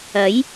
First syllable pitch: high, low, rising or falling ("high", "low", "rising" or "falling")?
rising